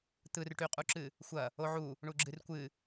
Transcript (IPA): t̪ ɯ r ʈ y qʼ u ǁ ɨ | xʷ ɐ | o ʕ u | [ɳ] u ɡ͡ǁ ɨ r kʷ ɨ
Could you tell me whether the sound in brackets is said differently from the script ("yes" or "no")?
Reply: no